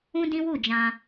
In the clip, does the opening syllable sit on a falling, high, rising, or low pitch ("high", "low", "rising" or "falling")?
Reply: high